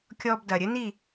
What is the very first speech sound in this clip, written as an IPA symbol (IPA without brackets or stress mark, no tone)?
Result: kʲ